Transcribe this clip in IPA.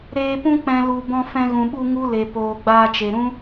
ɾeː˧pũ˦ k͡pɛ̃˨lu˨ bɔ̃˧ fɛ̃˧ɣũ˨ɓu˧ ŋu˦le˨ poː˨ɡ͡baː˧t͡ʃe˨ ɾũ˦

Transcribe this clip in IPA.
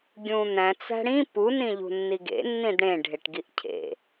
ɡʲũn̪æ̃ t͡sæ̤ɽĩ pu nĩʎṳnːiɡḛ nːĩdɽẽ ɖʱeʈɡiʔcʰḛ

